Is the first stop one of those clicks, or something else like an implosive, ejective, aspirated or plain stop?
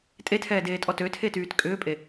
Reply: ejective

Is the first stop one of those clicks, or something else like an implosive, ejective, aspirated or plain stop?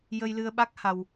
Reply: implosive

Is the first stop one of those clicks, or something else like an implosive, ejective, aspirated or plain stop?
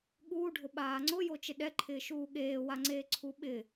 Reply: implosive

